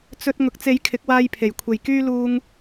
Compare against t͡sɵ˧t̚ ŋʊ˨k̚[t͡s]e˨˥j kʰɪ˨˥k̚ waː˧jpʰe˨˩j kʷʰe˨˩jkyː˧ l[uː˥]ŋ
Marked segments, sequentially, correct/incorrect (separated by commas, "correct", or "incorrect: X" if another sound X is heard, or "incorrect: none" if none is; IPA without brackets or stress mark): correct, correct